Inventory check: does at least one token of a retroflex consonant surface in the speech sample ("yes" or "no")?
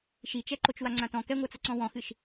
no